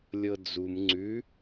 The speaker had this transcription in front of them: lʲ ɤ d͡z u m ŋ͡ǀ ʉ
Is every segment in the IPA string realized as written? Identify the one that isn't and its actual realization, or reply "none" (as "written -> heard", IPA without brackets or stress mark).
none